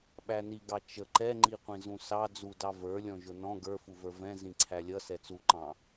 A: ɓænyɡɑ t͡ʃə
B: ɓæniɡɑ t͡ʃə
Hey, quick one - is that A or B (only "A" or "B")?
B